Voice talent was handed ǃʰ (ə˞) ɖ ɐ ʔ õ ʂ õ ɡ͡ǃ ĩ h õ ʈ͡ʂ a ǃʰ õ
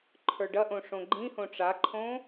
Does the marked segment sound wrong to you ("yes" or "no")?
no